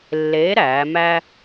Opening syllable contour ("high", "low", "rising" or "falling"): rising